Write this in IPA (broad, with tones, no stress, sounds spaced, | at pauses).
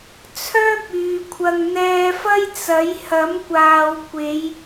t͡sʰ œː˥ p̚ yː˨ kʷʰ ɐ˧ ŋ n̪ ɛː˧ f ɐ˥ j t͡s ɐ˨˥ j h ɐ˨˥ m kʷ aː˨ w kʷ e˨˧ j